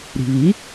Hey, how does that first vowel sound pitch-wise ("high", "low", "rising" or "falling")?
low